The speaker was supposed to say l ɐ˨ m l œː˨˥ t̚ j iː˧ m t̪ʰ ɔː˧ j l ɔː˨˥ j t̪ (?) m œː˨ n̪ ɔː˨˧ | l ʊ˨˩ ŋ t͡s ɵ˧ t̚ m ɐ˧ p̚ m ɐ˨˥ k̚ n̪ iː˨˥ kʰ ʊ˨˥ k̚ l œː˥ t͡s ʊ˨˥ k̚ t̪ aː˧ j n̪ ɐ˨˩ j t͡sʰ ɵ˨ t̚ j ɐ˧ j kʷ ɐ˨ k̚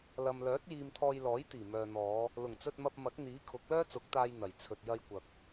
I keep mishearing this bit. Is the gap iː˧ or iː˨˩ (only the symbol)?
iː˨˩